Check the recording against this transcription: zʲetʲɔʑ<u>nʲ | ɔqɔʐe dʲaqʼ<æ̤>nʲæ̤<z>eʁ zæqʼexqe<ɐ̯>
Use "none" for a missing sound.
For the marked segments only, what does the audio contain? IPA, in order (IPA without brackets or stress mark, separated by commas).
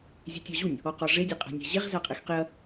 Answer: u, æ̤, ʑ, ɐ̯